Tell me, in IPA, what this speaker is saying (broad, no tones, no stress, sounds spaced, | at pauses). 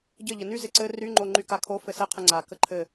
ɟ ɘ ʎ ə n y z ɪ ǀ ɘ r y ŋ͡ǃ o ŋ͡ǃ y k a kʰ o f ɘ s ɘ qʰ ə ŋ͡ǀ a k ə ǃʰ ɘ